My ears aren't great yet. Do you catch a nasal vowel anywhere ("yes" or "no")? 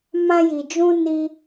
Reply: yes